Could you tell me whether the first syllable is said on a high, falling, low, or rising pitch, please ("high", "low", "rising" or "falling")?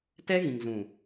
high